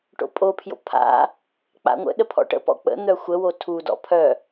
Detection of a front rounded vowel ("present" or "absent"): present